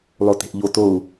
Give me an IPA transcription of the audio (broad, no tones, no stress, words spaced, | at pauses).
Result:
lˠote̤ʔʎo tou̯